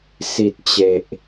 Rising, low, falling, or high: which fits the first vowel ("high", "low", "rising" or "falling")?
low